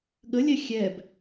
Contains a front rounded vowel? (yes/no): no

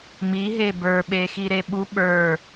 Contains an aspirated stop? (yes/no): no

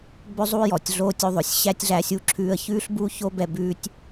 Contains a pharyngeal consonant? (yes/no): no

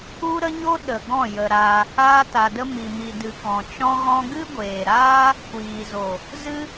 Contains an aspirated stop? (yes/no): no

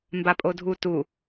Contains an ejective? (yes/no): yes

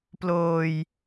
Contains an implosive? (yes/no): no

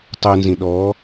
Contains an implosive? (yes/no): yes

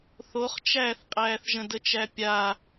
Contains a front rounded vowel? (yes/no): no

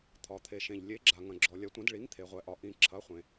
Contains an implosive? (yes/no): no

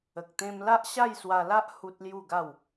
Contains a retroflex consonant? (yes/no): no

